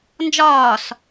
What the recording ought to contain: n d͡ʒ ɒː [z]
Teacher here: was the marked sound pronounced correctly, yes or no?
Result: no